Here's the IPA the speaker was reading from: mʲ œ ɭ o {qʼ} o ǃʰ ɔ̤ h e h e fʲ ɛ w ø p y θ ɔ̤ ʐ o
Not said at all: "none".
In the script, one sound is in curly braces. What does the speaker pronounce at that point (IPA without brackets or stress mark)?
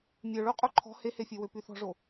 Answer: qʼ